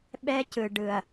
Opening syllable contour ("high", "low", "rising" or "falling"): high